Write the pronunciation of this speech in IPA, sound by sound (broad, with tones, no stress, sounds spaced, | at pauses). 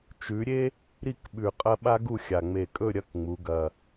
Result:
t͡ʃ ʉ˩˧ ɾʲ e˥ | ɾ i˥˨ k ɓ ʉ˨˩ qʼ ɐ˥ ɓ a˥ ɡ u˥˨ xʲ a˨˩ ŋ͡m e˨˩ kʼ ɵ˥˨ ɾʲ ɐ˧˥˧ k ŋ͡m u˩˧ ɡ ɐ˨˩